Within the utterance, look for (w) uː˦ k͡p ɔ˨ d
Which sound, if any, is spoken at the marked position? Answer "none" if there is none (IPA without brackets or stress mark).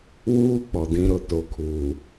w